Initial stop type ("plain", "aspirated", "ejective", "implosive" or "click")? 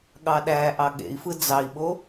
implosive